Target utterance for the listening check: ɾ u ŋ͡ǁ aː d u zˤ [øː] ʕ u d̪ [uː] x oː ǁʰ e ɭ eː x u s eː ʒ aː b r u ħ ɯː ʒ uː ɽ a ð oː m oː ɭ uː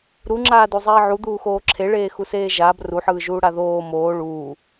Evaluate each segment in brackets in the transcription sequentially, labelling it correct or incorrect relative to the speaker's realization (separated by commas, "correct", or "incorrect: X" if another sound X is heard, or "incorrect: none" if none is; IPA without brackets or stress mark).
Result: incorrect: eː, correct